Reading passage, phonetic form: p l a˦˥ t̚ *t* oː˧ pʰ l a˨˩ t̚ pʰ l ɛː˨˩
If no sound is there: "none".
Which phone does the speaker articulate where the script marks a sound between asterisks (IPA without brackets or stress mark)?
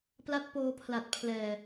p